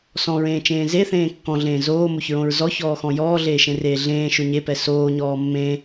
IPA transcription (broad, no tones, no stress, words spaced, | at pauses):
sɔ̃ɹẽːt͡ʃẽː ze θẽːkːɔ̃ɮẽː zoːmoçɹõɹ zɔçɔːxɔ̃ jɔːɮeːʃẽreː ɮẽː ʃʊɲepɛ soːɲɔː mːẽ